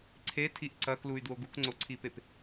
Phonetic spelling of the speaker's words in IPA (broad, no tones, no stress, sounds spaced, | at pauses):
ǀʰ e tʰ i ʔ ǀ ɐ k l u y̯ d w o ɡ u k ŋ͡ǀ o ǀʰ i p e p